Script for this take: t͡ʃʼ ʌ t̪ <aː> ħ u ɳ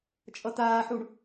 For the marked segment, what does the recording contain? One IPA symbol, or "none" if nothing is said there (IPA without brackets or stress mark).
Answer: aː